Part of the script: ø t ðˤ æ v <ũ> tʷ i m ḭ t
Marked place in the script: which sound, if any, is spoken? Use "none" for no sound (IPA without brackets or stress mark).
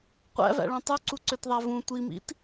ũ